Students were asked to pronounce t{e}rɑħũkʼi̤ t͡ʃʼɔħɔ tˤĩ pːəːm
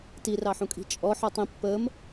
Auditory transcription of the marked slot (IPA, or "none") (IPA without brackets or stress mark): i